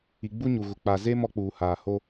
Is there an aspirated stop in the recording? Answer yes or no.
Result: no